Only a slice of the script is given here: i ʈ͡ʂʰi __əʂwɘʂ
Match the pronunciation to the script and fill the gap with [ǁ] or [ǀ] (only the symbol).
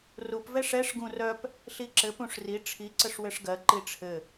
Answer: ǀ